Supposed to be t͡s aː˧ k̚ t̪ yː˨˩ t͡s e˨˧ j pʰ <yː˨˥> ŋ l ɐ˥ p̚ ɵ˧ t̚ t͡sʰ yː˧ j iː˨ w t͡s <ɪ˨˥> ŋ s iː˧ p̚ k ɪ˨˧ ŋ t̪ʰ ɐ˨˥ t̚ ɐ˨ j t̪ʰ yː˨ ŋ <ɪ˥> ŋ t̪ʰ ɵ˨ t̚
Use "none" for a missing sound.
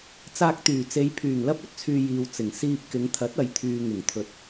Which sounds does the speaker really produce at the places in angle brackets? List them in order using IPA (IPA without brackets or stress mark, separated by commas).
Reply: yː˨˩, ɪ˨˩, ɪ˨˩